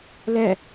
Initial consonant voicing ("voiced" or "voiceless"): voiced